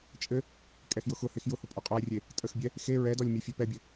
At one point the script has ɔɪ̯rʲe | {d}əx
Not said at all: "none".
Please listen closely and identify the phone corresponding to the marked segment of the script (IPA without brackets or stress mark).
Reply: tʼ